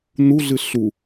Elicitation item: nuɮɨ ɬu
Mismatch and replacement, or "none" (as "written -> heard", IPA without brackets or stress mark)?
none